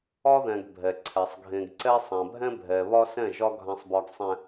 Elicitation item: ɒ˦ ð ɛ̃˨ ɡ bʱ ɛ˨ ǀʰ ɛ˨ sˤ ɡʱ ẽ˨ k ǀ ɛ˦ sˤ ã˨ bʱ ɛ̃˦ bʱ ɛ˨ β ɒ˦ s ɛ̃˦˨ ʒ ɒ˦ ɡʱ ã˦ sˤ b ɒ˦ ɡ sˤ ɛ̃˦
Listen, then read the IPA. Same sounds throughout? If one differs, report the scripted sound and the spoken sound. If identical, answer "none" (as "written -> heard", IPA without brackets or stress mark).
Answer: k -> ɡ